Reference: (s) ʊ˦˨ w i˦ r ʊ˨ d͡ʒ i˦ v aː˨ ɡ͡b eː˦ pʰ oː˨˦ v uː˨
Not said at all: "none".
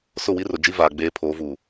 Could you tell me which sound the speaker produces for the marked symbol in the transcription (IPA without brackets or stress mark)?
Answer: s